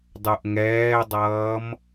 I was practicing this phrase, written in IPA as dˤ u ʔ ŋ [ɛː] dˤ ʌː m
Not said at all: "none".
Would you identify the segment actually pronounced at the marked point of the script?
ɛː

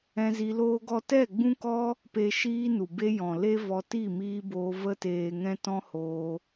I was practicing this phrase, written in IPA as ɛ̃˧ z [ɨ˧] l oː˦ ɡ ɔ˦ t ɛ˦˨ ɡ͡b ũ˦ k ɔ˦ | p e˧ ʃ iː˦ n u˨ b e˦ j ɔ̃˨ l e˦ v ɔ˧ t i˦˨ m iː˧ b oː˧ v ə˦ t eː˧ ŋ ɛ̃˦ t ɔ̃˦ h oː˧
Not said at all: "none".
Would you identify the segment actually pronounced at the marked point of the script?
i˧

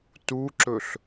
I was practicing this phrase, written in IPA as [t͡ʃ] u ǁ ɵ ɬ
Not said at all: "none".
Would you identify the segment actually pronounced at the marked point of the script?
t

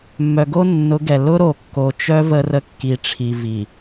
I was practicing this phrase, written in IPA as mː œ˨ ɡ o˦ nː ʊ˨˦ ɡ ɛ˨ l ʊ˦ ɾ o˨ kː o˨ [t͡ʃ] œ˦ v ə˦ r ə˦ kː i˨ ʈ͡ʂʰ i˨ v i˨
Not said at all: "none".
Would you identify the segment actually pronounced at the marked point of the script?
t͡ʃ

